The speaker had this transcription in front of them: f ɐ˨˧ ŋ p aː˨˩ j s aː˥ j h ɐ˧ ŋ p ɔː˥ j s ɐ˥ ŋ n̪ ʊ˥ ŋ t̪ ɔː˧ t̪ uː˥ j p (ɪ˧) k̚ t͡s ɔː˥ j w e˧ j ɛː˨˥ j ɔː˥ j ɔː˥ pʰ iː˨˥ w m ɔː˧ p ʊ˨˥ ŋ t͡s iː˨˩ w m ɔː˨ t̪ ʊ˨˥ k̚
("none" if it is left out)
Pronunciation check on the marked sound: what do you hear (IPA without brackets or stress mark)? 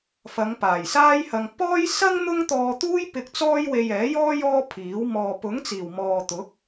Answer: ɪ˧